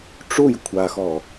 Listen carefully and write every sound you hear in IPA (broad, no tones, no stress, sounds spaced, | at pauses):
ʈ͡ʂ u j kʷʰ a x ɔ